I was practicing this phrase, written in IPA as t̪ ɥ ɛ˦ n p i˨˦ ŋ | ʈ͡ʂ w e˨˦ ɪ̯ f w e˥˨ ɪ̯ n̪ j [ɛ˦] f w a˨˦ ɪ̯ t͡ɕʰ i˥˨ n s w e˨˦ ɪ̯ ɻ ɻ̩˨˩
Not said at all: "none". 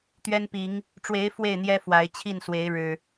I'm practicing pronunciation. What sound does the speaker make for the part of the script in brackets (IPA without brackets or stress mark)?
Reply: ɛ˦